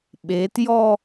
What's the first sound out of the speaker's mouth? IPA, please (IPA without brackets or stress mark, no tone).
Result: ɓ